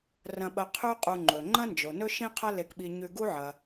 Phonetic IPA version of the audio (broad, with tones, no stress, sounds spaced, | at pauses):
r ɐ̃˧ ɓ ɐ˧ qʰ ʉ˥ qʼ u˧ ŋ͡ǃ ɵ˩ ŋ͡ǃ ɐ̃˥ n d͡ʒ o˩ n ɵ˥ ʃ ĩ˥ qʰ ɐ˥ l e˧ k ɓ i˧ ɲ ʉ˧ ɡ u˥ ʕ ɐ˩